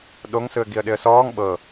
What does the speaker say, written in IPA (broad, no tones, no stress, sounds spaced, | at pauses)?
ɗ o ŋ s ɯ ə̯ ɡ i ə̯ ɗ ɪ ə̯ s ɔː ŋ ɓ ɤ